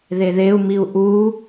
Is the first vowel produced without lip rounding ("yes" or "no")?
yes